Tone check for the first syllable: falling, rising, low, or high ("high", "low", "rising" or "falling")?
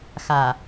low